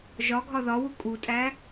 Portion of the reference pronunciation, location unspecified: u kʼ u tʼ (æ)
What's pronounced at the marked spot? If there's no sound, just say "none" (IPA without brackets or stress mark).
æ